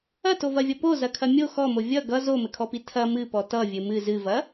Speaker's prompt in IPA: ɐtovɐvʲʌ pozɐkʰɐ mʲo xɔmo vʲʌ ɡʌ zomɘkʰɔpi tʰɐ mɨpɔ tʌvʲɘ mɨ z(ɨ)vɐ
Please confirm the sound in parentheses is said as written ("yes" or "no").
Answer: yes